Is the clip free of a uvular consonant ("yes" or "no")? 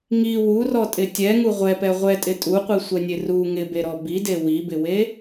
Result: no